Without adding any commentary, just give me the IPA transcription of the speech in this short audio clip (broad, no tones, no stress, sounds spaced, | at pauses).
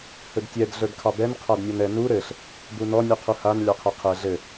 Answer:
h ɵ d tʲ ɛ d ɮ ə˞ d kʰ ɑ b ɛ n qʰ a d nʲ ɔ n ɛ n u ɾ ɘ ɬ | b u n ɔ nʲ u qʰ u h a n lʲ ɑ qʰ ɛ qʰ ɛ ɮ ɘ